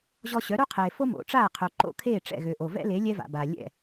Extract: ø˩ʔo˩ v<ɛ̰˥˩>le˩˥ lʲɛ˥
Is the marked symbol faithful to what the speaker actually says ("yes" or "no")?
no